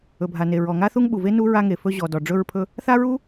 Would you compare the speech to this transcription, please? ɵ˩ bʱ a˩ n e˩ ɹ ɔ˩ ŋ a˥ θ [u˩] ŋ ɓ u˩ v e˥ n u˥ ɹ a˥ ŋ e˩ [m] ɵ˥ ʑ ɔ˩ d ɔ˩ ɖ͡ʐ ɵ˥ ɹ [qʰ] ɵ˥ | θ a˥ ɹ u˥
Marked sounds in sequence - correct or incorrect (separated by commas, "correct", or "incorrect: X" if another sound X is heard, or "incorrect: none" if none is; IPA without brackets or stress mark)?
incorrect: u˥, incorrect: f, incorrect: pʰ